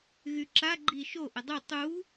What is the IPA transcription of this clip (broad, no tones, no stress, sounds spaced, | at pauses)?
ɣ y ǁ a ɡ͡ǃ i ʃ o ʔ ə dˤ u tˤ u